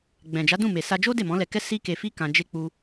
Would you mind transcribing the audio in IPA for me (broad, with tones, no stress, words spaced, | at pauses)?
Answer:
ɡ͡bɛ̃˨d͡ʒa˨˦dũ˦˨ me˨sa˧d͡ʒo˦ de˦˨mɔ̃˨˦lɛ˧kɛ˦ si˦ke˧fi˦ kã˧ d͡ʒe˦k͡pu˦